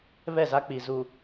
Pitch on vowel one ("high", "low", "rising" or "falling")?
falling